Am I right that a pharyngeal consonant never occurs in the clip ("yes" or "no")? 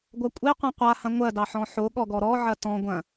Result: no